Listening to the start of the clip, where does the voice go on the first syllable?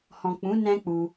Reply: low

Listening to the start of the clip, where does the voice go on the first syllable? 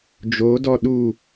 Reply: rising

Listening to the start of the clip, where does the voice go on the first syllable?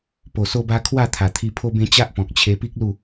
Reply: low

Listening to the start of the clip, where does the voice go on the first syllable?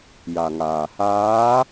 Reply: low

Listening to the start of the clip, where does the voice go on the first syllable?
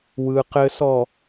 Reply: low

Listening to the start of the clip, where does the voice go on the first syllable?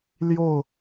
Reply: falling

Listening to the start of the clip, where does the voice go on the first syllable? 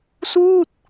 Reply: falling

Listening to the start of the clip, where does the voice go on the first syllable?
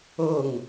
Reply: falling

